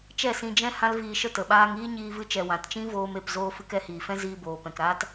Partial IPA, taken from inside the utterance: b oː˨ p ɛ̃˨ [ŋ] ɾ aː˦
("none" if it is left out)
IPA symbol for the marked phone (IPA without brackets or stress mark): k